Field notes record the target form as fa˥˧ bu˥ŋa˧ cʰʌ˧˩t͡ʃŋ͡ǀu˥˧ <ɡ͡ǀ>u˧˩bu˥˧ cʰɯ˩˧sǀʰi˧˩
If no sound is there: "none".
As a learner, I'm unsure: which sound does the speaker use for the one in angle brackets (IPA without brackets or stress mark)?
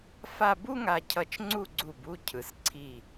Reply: ɡ͡ǀ